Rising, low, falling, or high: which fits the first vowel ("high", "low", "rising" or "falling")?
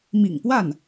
low